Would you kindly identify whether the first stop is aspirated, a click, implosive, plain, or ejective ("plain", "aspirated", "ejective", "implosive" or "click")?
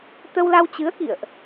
plain